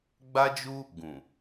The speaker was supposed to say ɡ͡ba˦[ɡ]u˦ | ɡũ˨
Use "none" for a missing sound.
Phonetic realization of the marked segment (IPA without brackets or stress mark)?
d͡ʒ